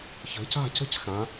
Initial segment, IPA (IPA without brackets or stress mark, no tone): ç